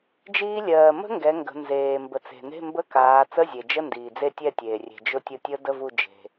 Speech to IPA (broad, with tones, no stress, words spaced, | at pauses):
d͡ʒiː˦˥lʲɜː˩ mə̤˦˥ŋɡɛ˩˧ ŋɡə̤˩˧nzeː˩ mbə˩t͡se̤˩ne̤˧˥˧ mbə˧˥˧kaː˩˧ t͡sə˧˥˧zʲe˩d͡ʒə˧˥˧ ndiː˩d͡ze˦˨tʲɛ˦˨tʲeː˩ rʲe̤˩d͡ʒʊ˦˨tʲə˦˨ tʲə˦˥də˧˥˧vu˦˨ d͡ʒe̤˩